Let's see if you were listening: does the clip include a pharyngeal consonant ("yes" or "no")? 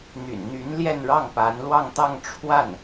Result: no